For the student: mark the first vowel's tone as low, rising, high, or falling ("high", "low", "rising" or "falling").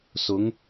rising